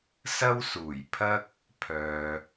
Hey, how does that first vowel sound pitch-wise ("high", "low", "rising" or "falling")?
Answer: high